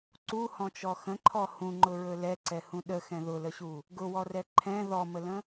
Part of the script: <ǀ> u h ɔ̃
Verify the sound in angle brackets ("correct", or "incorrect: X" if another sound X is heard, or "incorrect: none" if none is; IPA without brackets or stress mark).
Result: correct